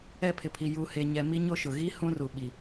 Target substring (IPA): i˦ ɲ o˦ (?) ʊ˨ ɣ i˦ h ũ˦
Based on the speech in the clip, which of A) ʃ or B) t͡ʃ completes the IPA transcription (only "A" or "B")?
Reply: A